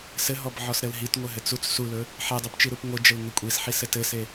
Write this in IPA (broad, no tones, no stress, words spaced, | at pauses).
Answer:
sɘɦɔbʕɔsɾɘl ɦitŋʷɘɦɘt͡s ut͡s sulɵ | ħedˤupt͡ʃiɾup ŋʷɘd͡ʒəlŋɵ kʷʼisħisɘ tɘse